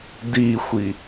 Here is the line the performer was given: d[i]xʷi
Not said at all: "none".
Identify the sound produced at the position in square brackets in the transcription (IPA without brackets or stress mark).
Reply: i